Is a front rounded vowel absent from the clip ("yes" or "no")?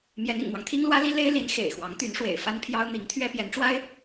no